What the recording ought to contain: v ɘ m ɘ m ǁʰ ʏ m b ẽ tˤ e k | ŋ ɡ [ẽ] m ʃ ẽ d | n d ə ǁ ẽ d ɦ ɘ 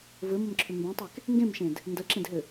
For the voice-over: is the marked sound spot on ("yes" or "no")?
yes